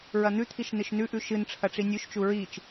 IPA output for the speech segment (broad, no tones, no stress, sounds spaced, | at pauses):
ɹ ɐ n̪ ʉ t̪ʰ i ʃ n ɨ ʃ n ʉ ʔ ʉ ʃ ɨ n ʈ͡ʂʰ ɐ ʈ͡ʂ i nʲ ʉ ʃ t͡ʃ u ɹ i t͡ʃ